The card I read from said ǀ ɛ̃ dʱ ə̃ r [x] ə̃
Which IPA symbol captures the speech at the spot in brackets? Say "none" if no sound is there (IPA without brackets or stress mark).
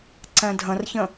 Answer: ç